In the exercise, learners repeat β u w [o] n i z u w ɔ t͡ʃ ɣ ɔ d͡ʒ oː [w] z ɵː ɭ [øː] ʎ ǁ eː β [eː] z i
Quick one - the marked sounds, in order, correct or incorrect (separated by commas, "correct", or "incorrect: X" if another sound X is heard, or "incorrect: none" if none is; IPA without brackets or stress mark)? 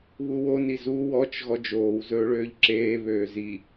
correct, correct, correct, incorrect: øː